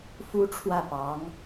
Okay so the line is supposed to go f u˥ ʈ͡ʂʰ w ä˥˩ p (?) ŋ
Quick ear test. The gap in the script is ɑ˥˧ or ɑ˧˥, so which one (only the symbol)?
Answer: ɑ˧˥